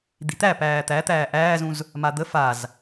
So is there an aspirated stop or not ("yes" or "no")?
no